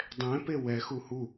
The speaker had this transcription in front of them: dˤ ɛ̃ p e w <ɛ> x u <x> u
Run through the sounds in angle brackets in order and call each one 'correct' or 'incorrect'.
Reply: correct, incorrect: h

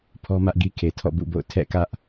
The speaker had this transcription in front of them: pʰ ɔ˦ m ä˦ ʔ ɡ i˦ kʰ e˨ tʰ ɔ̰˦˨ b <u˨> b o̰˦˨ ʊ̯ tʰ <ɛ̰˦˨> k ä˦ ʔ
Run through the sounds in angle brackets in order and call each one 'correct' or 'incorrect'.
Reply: incorrect: ṵ˦˨, correct

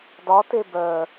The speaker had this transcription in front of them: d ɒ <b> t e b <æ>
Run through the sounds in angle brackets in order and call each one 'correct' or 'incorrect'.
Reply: incorrect: none, incorrect: œ

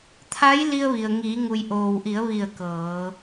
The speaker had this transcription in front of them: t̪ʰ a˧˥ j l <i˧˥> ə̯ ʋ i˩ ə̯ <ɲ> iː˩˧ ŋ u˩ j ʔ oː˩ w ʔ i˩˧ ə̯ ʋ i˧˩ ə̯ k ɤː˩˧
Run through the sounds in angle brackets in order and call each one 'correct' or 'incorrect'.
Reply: incorrect: i˧, incorrect: ŋ

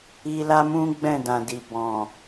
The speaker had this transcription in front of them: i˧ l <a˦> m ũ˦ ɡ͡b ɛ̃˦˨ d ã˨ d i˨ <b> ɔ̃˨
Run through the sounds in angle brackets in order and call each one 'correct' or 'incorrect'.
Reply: correct, correct

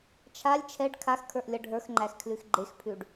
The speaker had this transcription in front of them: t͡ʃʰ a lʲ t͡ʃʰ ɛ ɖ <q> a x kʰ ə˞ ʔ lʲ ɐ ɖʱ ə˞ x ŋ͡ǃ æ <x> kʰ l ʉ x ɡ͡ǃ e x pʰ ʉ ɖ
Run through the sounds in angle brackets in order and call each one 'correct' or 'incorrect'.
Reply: incorrect: kʰ, correct

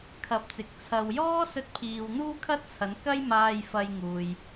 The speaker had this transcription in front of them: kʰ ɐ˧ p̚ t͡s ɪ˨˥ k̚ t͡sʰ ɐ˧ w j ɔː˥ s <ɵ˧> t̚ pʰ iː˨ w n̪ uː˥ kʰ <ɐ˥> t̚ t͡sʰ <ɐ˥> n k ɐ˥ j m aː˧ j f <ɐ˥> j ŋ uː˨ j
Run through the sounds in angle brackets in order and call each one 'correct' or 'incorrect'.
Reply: correct, correct, incorrect: ɐ˨˧, incorrect: ɐ˧

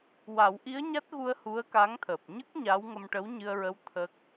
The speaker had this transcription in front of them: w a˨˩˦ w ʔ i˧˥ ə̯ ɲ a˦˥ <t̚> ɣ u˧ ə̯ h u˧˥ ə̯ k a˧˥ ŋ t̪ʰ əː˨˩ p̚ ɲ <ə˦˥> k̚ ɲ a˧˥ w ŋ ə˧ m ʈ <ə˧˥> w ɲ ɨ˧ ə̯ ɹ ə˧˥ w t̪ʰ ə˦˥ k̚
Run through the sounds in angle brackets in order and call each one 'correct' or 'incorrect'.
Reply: correct, correct, correct

